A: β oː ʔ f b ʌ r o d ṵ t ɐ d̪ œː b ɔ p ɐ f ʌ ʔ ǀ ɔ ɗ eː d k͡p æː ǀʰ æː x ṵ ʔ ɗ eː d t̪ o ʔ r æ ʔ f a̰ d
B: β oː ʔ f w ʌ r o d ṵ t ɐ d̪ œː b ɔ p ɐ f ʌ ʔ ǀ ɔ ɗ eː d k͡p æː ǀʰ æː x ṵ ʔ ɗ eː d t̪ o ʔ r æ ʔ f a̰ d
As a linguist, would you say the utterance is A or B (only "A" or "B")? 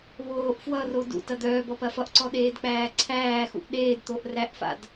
B